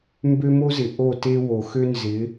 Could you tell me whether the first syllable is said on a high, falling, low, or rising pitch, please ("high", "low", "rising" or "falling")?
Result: high